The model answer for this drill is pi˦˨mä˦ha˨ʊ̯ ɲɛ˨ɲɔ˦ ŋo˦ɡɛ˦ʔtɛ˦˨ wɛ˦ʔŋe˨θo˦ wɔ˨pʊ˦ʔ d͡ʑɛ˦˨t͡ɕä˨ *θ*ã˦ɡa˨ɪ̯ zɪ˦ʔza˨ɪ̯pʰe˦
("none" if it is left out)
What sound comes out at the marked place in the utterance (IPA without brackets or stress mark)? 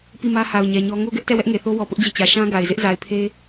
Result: ʃ